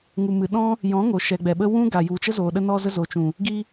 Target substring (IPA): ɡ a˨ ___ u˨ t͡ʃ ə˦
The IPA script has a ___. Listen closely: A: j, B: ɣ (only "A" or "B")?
A